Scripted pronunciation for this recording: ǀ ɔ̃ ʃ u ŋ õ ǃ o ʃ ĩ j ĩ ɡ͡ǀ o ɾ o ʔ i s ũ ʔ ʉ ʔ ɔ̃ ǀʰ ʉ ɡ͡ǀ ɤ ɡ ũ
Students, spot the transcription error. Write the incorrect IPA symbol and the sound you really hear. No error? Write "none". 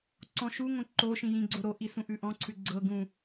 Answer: none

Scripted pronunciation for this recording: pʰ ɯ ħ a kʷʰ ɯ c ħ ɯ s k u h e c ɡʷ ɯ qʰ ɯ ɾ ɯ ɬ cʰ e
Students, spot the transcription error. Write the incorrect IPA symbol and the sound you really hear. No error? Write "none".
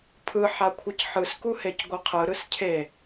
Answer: ɬ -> s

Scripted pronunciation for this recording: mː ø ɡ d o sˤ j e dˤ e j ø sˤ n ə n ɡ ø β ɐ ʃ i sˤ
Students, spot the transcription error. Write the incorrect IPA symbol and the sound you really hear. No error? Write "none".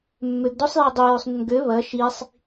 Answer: none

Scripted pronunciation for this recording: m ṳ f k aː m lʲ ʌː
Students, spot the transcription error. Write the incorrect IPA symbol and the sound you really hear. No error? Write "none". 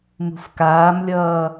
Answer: none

